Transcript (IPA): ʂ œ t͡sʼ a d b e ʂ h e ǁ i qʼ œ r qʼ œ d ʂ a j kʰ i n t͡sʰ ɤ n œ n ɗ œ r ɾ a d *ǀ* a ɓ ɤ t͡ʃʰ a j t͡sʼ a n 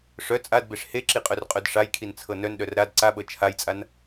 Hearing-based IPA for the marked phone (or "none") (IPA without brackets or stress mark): ǀ